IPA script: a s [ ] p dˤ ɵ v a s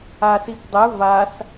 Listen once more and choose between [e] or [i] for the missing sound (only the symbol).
i